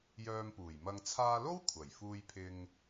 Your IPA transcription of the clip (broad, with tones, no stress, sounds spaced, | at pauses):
j œː˧ m p uː˨˩ j m ɐ˧ ŋ t͡sʰ aː˧ l o˥ w kʷʰ ɐ˨˩ j f uː˧ j pʰ ɪ˧ ŋ